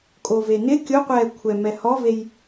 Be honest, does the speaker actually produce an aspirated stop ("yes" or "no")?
yes